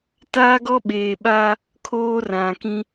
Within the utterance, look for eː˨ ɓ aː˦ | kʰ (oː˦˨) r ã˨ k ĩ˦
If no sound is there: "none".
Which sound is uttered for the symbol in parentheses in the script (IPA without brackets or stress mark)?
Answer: oː˦